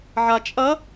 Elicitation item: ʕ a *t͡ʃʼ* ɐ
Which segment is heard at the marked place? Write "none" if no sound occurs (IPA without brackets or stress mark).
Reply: t͡ʃʼ